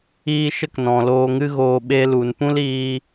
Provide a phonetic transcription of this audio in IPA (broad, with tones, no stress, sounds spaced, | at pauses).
iː˧ ʃ ə˦ k n ɔ̃˨ l oː˨ ŋ ɨ˧ ɣ oː˨ ɓ e˧ l u˨ n p ũ˦ l iː˧